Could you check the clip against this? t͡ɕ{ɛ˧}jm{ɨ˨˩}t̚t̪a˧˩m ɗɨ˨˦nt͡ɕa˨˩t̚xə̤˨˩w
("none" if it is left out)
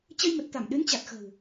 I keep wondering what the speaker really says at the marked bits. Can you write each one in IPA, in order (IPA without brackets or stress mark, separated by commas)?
ə˧, ə˨˩